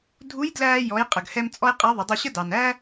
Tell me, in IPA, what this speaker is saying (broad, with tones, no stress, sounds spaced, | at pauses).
dʱ u˧˥ j d l æː˧ j ɔ˩˧ j qʼ ə˩ ɡ h ɛ˧ m t͡sʼ ɔ˥ j qʼ æ˧˥ ðˤ ɪ˩˧ dˤ u˧ ɕ ə˥ d ɑ˩ n æ˥